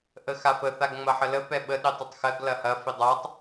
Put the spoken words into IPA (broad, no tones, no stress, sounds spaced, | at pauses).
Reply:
ʔ ə x a f ə θ a ɡ ŋ͡m ɐ ħ ə l ə p ɛ ɓ ə ɗ i tˤ ɘ tˤ x ɜ ɡ l ɐ h ɐ f i dˤ æ tˤ